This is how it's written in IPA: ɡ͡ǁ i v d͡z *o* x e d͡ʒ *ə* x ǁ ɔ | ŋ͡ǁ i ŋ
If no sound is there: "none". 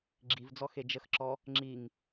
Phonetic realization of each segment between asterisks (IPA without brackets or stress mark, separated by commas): ɔ, ə